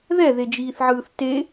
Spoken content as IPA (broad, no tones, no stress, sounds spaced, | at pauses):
ð ɛ ð e d͡ʒ iː θ ʕ ɯː θ t e